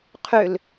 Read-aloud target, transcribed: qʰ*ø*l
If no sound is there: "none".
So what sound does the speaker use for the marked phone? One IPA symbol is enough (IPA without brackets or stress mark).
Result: ø